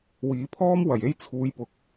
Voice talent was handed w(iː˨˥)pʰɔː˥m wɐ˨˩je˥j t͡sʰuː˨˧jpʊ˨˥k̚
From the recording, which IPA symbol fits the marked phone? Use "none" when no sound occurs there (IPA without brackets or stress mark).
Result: iː˨˥